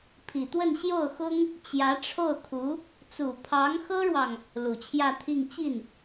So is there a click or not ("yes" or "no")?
no